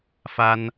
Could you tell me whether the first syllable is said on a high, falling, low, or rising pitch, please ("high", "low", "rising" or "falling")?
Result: high